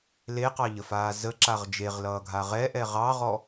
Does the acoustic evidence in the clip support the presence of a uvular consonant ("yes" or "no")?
yes